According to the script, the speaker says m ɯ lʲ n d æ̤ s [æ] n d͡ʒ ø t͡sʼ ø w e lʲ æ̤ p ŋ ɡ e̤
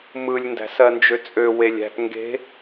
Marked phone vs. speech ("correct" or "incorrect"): incorrect